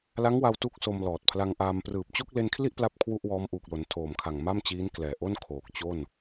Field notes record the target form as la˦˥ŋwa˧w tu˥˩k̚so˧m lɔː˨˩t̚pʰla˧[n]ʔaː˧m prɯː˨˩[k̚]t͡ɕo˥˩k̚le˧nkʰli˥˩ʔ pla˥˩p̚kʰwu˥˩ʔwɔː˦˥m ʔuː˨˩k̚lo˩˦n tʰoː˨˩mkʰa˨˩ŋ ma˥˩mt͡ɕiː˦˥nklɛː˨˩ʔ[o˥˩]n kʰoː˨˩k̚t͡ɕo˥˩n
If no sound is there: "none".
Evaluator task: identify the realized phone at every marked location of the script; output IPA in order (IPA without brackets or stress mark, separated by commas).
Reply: ŋ, p̚, o˥˩